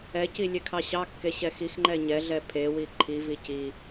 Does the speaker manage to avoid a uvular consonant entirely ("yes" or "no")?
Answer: yes